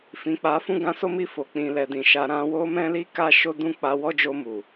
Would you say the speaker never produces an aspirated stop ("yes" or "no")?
yes